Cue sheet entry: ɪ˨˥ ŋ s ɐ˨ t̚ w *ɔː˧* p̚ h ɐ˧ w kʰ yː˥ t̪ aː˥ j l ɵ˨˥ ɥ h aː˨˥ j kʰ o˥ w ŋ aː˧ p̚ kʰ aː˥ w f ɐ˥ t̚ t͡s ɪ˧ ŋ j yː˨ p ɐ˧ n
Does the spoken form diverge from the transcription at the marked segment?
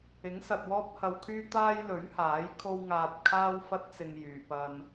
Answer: yes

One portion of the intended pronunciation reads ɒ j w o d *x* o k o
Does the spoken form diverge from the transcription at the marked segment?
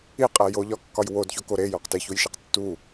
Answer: yes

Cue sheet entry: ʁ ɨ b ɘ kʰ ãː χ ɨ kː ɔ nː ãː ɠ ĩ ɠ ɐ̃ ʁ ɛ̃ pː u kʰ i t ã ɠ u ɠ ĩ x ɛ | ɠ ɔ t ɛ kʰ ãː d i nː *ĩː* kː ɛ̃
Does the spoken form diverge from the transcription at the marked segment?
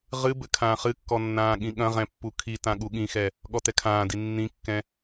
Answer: yes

